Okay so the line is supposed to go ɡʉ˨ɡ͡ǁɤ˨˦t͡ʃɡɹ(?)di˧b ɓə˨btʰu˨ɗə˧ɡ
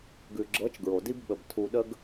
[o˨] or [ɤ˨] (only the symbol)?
o˨